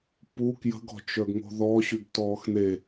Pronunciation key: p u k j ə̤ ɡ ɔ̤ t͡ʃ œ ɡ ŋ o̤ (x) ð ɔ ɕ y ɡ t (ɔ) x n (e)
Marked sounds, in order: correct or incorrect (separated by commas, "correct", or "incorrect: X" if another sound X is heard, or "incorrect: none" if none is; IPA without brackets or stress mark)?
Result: incorrect: none, incorrect: ɔː, correct